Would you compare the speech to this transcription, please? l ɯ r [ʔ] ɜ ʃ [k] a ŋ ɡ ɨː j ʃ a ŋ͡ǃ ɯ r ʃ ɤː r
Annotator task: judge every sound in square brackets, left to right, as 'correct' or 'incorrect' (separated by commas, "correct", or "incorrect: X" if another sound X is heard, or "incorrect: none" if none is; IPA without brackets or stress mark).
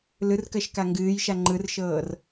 incorrect: k, correct